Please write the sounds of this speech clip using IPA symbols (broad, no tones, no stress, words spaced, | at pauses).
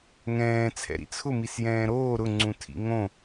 ŋɛ̃ː t͡sʰɛ̰ɾḭt͡sʰʊ misjɛ̃ːɾoː ɾʊŋ͡ǀũ tʰḭŋõ